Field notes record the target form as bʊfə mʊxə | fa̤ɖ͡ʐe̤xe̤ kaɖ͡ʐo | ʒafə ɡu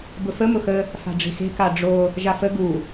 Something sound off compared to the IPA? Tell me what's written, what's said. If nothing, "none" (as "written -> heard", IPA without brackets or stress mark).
none